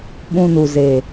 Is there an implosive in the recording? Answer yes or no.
yes